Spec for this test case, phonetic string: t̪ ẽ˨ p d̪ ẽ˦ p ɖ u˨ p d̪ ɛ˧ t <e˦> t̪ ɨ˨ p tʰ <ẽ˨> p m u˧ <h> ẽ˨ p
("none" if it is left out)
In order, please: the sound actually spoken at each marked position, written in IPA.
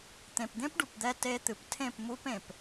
e˧, ẽ˦˨, p

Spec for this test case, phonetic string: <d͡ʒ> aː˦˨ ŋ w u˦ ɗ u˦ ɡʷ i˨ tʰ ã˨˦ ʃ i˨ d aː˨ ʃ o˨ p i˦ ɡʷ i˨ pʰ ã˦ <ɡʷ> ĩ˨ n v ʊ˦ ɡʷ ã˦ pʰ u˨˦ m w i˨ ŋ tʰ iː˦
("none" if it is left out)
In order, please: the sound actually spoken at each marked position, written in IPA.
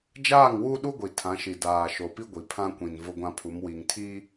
d͡ʒ, kʷ

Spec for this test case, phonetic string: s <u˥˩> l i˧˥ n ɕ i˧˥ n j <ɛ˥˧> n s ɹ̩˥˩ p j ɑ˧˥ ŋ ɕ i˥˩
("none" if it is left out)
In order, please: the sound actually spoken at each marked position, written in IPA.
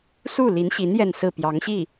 u˥˩, ɛ˥˧

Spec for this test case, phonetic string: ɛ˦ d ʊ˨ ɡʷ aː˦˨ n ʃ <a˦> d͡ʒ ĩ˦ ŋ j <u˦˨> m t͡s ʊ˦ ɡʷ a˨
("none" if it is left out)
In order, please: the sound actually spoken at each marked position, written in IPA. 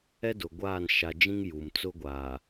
a˨, u˨

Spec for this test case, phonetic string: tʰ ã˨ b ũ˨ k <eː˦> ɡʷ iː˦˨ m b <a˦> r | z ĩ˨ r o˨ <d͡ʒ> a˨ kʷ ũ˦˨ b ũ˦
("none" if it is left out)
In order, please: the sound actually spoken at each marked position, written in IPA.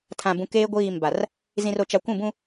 eː˦, a˨, t͡ʃ

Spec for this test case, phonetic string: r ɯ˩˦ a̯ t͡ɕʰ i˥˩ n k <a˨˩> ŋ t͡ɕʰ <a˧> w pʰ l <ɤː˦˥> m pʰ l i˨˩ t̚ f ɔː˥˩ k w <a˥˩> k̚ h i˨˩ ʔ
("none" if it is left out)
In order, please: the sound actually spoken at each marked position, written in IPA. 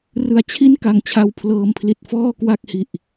a˨˩, a˧, ɤː˧, a˥˩

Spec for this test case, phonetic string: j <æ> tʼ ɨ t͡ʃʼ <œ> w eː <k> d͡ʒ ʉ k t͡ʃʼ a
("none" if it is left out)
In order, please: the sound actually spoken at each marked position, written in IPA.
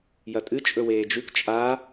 ɐ, ɵ, none

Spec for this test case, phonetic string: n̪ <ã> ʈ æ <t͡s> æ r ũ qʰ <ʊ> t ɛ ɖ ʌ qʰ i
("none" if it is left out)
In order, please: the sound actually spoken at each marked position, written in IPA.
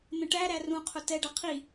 ə̃, ɾ, ʊ

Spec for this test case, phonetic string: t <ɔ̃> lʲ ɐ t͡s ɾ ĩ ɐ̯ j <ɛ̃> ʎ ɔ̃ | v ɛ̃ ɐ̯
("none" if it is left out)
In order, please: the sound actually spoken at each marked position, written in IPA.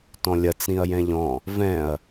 ɔ̃, ɛ̃

